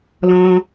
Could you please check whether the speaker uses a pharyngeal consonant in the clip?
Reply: no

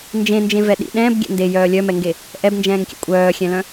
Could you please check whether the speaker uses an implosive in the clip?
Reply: yes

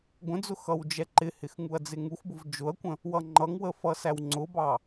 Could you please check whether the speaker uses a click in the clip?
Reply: yes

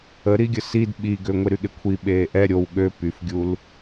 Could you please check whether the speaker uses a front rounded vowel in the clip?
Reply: yes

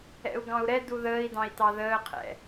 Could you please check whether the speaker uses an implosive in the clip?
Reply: no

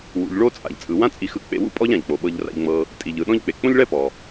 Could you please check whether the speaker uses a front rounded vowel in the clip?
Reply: no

